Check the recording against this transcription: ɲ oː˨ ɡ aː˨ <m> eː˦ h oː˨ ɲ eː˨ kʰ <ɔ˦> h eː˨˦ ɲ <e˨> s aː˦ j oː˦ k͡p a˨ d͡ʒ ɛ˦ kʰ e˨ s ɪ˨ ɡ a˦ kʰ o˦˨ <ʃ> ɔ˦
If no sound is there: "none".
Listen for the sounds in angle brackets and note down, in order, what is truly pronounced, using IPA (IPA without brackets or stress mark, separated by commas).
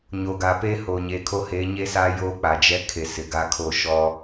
p, o˦, e˦, ʃ